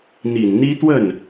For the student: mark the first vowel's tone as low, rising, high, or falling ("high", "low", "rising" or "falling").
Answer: low